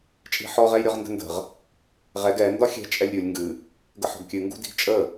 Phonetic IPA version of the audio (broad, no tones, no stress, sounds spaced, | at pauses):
t͡ʃʼ i̤ ħ ɔ ʁ ɛ j ɾʲ ɔ ʁ n d ə̤ n d ə̤ ʁ | ʁ ɛ ɡ ɛ n d ɒ xʲ ɛ̤ t͡ʃʼ ɛ lʲ ɾʲ u lʲ ŋ ɡ ɨ | ɡ ə ħ ɔ̤ ɡ kʲ ɨ ŋ ɡ ṳ d i̤ ɡ t͡ʃʼ ə